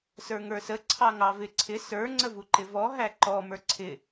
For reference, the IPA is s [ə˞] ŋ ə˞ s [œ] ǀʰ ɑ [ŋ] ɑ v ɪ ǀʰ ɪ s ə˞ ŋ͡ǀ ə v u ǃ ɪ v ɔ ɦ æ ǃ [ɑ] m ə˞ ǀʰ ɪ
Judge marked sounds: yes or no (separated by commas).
yes, no, yes, no